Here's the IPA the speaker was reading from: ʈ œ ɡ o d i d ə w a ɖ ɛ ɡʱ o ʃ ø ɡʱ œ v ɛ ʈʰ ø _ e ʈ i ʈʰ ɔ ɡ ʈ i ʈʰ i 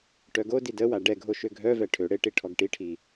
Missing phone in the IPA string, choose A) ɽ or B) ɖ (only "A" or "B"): A